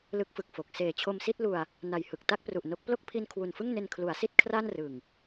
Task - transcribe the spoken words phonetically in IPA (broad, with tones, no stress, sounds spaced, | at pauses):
l ɯ˦˥ k̚ f ɯ˨˩ k̚ f o˨˩ k̚ s eː˨˩ t͡ɕʰ o˧ m s i˥˩ t̚ l u˧ a̯ | n a˨˩ j h ɯ˨˩ k̚ t a˥˩ k̚ p r u˨˩ ʔ n o˦˥ k̚ p l o˥˩ k̚ pʰ i˧ n kʰ w u˨˩ n f ɯ˥˩ ŋ n e˧ n kʰ l u˩˦ a̯ s i˥˩ t̚ kʰ r a˥˩ n r ɯ˨˩ ŋ